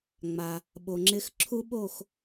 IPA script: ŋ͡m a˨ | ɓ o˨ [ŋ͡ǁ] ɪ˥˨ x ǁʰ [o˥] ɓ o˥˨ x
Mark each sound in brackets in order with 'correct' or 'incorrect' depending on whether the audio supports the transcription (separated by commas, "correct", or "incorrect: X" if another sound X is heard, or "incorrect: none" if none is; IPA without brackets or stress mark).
correct, incorrect: u˥